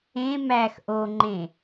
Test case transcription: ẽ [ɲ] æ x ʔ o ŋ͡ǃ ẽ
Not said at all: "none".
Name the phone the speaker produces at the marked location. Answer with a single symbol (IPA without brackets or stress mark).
m